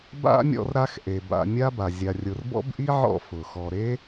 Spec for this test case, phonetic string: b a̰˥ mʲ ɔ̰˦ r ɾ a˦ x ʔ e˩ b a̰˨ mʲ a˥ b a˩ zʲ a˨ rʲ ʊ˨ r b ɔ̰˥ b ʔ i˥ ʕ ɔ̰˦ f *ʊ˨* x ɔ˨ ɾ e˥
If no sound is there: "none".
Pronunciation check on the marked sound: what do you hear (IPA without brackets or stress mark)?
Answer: ʊ˩